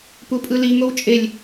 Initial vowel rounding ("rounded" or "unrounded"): rounded